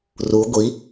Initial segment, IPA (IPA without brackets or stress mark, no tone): r